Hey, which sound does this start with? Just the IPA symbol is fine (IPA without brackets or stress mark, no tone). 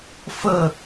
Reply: f